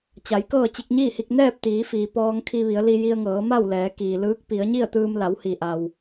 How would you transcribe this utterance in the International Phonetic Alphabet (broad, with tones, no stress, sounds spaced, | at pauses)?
t͡ɕ a˩˧ j k ɤː˥˨ t͡ɕ i˧ k̚ ɲ iː˥˨ h i˧ k̚ n ɛː˥˨ p̚ t̪ iː˩˧ f iː˩ p ɔː˧ ŋ kʰ i˧ ʋ i˩˧ ə̯ l i˧ j i˧ ə̯ ŋ ɤː˩˧ m a˥˨ w l ɛː˩˧ k iː˩ l ɯː˧˥ k̚ p i˩˧ ə̯ ɲ i˥˨ ə̯ t̪ ɯː˧ m l a˩˧ w h i˩ ʔ a˩ w